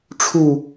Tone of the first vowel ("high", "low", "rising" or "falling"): falling